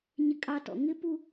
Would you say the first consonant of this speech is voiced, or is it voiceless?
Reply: voiced